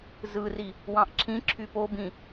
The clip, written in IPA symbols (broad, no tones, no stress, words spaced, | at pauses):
zɯri | wɑ̃ʔǁʰĩǁʰy pobĩ